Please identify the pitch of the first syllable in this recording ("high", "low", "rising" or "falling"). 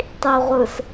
low